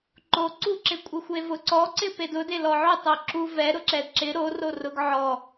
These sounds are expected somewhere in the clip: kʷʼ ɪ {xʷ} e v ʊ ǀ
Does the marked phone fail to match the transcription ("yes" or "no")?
no